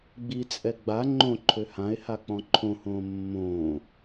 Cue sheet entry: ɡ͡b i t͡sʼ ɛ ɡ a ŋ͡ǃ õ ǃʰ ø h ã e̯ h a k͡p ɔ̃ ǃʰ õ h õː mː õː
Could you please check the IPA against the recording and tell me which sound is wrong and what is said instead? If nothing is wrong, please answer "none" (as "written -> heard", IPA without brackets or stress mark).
ɡ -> ɡ͡b